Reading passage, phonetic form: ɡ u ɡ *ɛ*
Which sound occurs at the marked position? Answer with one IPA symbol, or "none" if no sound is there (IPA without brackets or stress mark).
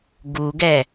ɛ